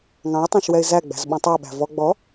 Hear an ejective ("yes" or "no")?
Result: no